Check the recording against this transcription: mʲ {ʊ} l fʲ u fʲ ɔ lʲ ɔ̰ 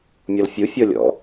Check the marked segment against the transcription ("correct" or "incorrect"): incorrect